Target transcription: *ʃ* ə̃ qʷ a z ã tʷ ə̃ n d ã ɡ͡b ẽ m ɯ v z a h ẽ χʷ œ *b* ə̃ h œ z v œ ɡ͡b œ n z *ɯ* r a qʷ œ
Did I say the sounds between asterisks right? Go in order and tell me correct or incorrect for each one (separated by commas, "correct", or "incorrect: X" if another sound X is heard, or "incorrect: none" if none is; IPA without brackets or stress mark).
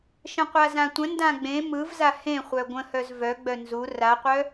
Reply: correct, incorrect: ɡʷ, incorrect: u